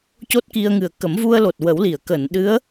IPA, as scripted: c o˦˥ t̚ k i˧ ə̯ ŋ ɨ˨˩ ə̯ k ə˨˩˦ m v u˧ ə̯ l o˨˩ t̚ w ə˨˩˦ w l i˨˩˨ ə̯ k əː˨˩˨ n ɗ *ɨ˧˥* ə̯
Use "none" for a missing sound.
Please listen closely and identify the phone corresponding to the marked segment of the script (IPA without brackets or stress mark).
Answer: ɨ˧˥